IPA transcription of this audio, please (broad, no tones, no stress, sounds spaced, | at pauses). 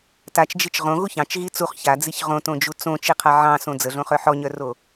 t a t͡ʃ d͡ʒ i t͡ʃ ʁ õ ɣ u ç ɑ̃ t͡ʃ ɣ i t͡s u χ ç a d͡z i ç ʁ õ t õ d͡ʒ u t͡s õ t͡ʃ i qʰ a ʕ ɑ̃ s õ d͡z ə ɮ õ χ œ ħ ɔ ɲ œ r o